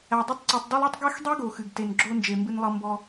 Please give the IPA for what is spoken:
æ˨ dˤ ɛ˥ tˤ ǀ i˨ tˤ d ɔ˥ lˠ i˥ tˤ ɡ ɛ˥ x dˤ i˥ ɡ o˨ x ɨ˩ ɡ t e˨ n ɡ͡ǁ o˦ n d͡ʒ e˨ m b ɨ˦ n lˠ ɤ˦ m b ɔ˦

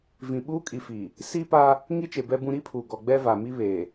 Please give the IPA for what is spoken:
v ĩ˨ ɓ uː˦ kʼ i˨ f iː˨ | s iː˦ p a˦ | ŋ i˦ t͡ʃ e˨ b ɛ˦ b ũ˦ ɾ i˦ pʰ uː˨ ɡ ɔ˨ ɡ͡b ɛ˦ v a˨ m i˦ β e˨

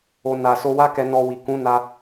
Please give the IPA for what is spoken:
o˨ n a˨ s o˧ w a˦ k ɛ˧ n ɔ˧ w i˨ k ũ˨˦ n a˧

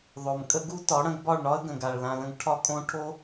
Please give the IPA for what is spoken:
ðˤ o˨ m kʼ ə˦ ɡ u˦ t ɒ˨˦ ɽ ə̃˧ ɡ b ɒ˦˨ ɭ ɳ ɒ˦ ə̯ ɡ ə̃˨ ɡ a˨ ɭ l ã˧ l ə̃˦ ɡ ʈʰ ɒ˦ kʼ õ˦ ʈʰ o˦

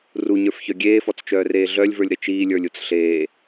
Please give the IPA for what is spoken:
r u ɲ ə˞ f ç œ ɡʲ eː f ɔ t͡s t͡ʃ œː r eː ɮ œ lʲ v ə˞ lʲ ɾ ɘ t͡ʃ iː lʲ ə˞ lʲ u t͡s ɬ eː

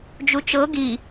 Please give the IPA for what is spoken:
d͡ʒ u t͡ʃ ɤ ɡ i

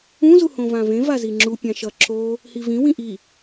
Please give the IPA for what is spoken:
ũ z u h õ v ã v ẽ v a z i ŋ͡ǁ u pʲ ã ʃ ʌ ǁ o | h i v ĩ w ĩ ʔ i

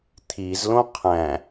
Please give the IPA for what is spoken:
t̪ʰ i z l õ qʰ æ̃

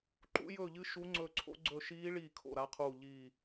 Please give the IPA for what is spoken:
ǃ ṵ˦˥ j ɵː˦˨ ʎ ɨ˦˥ ʃ u˦˥ ŋ͡ǀ ɵː˦˨ ǀʰ o̰˦˥ ɡ͡ǀ ɵ˦˨ ʃ iː˦˥ ɭ iː˦˨ kʰ o̰˦˨ ɾ a˦˥ qʰ uː˦˨ ʎ i˦˨

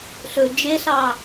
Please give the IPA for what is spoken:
ɬ ɵ d͡ʒ e ɬ ɑ

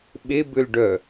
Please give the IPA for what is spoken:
ɓ e b ʏ l ɖ œ

